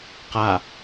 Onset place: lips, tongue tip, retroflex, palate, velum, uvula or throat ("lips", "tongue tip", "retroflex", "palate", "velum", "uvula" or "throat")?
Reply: uvula